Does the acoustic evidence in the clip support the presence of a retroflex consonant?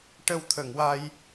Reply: yes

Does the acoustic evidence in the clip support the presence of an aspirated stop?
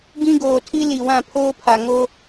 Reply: yes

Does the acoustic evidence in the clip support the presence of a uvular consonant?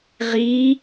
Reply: yes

